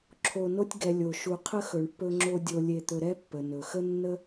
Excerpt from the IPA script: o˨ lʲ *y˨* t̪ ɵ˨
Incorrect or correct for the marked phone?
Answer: incorrect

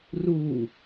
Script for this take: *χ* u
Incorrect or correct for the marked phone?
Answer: incorrect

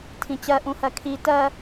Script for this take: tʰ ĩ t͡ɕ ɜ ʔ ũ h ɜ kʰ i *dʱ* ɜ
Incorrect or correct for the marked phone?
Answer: incorrect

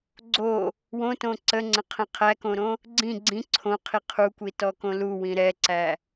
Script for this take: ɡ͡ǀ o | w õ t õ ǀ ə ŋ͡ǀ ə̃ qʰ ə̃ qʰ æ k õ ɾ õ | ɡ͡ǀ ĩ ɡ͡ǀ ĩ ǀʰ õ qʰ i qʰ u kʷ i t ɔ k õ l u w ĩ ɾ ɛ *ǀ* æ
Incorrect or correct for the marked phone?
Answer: correct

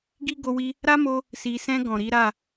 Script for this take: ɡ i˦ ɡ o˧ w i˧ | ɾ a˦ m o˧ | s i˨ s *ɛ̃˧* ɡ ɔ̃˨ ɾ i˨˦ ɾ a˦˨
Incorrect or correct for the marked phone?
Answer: correct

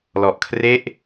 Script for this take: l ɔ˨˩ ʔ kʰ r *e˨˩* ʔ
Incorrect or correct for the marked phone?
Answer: incorrect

